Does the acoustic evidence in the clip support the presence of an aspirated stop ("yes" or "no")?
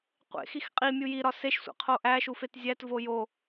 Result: yes